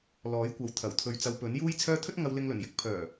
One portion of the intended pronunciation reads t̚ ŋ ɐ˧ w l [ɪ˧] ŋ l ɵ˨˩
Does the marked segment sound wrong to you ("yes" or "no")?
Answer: no